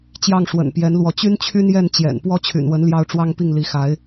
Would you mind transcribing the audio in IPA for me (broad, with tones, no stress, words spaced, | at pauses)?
t͡ɕjɑ˥˩ŋʂwə̰˨˩npjɛ˧˥nlwɔ˧˥ t͡ɕy˥nt͡ɕʰy˥njɛ˥˩n t͡ɕjɛ̰˨˩n pwɔ˥t͡ɕʰy̰˨˩nwə˧˥n ljɑ˥ʊ̯ ʈ͡ʂwɑ˥ŋpi˥˩ŋli˧˥xa˧˥ɪ̯